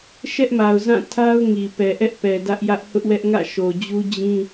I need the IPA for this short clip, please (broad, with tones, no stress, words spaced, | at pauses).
ʃɛ˦ʔma˨ʊ̯zã˦˨ tʰa˦ʊ̯ŋi˨ pɛ˨ʔɛ˦ʔpɛ˨ dä˦ʔjä˦ʔ hʊ˦ʔwɛ˦ʔ ŋä̰˦˨ ʃo˨d͡ʑu˦ d͡ʑĩ˦